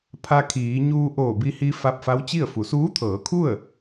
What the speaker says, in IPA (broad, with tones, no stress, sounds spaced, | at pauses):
pʰ a˧ kʰ iː˩˧ ɲ uː˧ ʔ oː˧˩ b i˧ h i˧ f a˧ p̚ f a˧˥ w t͡ɕ i˥˨ ə̯ f u˩˧ s uː˧˥ t̪ʰ ɤː˩˧ kʰ u˥˨ ə̯